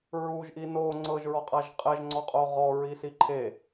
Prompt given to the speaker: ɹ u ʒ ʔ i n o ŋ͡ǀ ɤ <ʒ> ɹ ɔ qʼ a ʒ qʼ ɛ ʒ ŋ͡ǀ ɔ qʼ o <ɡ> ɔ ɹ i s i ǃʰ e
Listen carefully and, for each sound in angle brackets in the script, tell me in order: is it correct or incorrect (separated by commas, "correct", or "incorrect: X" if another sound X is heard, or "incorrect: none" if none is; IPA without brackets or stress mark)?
correct, incorrect: ʁ